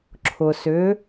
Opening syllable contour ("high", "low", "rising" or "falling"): low